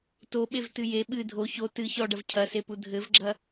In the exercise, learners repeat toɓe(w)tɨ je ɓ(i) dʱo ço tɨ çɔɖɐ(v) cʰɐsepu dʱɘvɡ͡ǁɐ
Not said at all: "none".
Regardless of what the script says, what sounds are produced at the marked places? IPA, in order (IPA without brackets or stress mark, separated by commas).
v, ɨ, v